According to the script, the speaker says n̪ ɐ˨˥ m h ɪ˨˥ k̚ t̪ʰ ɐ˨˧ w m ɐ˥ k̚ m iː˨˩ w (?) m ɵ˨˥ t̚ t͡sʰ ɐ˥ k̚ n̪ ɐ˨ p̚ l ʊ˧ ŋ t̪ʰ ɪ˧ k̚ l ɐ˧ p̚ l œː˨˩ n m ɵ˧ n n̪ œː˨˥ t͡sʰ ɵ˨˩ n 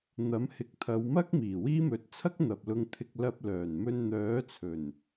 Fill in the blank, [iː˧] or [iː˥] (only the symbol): iː˥